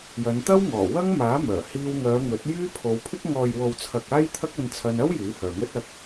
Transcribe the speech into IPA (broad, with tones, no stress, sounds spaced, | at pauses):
j ɐ˨˧ n t̪ ɐ˥ w ŋ ɔː˨˩ w ɐ˥ ŋ m aː˨˥ m œː˨˩ h iː˧ w ŋ œː˨˧ ŋ ɵ˨˥ t̚ j yː˥ pʰ o˨˧ w pʰ ɪ˥ k̚ ŋ ɔː˨ j w o˨ w t͡sʰ ɐ˨ k̚ aː˥ j t̪ʰ ɐ˥ k̚ ɐ˧ n t͡sʰ ɐ˧ n ɐ˥ w j yː˨˥ h œː˨ ŋ ɵ˥ t̚ ɐ˧ k̚